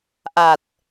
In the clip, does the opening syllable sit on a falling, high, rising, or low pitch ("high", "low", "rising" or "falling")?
low